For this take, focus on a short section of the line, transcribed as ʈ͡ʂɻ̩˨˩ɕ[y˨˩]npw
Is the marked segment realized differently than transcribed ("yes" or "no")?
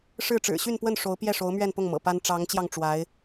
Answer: yes